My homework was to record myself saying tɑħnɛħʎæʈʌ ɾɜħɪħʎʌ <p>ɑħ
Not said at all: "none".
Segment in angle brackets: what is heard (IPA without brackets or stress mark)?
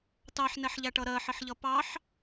p